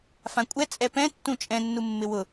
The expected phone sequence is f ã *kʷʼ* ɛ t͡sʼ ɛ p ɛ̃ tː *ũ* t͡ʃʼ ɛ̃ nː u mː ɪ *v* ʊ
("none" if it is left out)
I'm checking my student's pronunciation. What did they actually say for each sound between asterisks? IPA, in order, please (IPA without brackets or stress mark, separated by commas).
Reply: kʷʼ, ũ, w